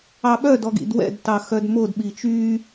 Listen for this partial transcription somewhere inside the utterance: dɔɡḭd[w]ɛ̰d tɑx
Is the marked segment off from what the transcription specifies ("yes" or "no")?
no